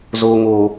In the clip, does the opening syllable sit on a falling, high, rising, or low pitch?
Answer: low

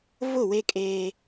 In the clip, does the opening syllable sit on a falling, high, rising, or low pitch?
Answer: falling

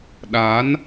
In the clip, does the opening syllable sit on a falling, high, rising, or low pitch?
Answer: rising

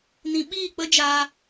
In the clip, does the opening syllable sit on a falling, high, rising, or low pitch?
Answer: low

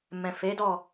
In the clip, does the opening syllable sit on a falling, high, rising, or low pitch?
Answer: low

